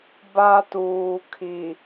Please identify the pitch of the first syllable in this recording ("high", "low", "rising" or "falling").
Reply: high